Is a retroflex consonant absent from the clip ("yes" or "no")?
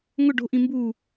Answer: no